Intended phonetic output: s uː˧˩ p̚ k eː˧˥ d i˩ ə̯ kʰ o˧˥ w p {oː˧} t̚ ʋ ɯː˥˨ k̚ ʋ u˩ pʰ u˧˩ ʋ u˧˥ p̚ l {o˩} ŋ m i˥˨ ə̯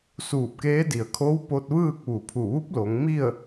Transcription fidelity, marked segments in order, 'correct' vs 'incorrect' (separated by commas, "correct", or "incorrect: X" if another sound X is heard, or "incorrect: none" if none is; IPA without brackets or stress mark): incorrect: o˧, incorrect: o˩˧